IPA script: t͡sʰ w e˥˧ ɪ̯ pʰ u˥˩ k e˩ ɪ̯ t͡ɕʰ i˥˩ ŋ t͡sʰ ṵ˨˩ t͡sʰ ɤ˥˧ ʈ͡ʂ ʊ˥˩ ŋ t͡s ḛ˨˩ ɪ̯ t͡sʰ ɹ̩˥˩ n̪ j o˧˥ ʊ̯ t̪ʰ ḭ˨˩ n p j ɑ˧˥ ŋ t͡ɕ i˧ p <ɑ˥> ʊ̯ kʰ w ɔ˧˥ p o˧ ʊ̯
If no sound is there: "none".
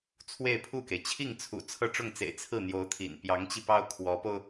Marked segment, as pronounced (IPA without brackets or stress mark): ɑ˥